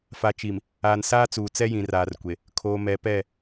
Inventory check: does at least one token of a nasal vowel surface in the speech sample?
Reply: yes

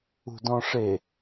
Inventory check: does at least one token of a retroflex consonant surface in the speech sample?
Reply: yes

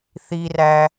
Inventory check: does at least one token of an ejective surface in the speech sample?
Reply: no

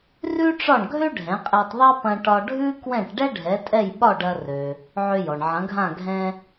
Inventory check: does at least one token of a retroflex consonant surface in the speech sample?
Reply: yes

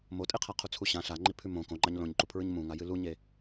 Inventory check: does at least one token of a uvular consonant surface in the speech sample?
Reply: yes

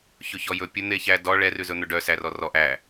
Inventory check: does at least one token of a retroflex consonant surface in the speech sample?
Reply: yes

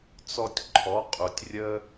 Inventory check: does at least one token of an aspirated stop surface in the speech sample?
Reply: yes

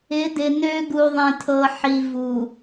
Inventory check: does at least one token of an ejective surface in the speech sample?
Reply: no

